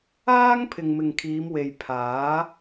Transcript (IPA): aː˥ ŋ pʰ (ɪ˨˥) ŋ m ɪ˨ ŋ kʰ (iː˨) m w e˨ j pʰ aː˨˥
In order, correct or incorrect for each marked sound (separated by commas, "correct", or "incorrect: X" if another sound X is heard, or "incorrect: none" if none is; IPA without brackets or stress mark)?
incorrect: ɪ˨, incorrect: iː˨˧